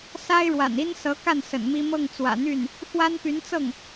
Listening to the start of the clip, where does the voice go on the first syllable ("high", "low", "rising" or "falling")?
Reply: high